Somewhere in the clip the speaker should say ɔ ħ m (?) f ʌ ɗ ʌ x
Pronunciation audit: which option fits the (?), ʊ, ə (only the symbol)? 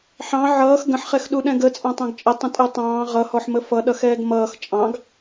ə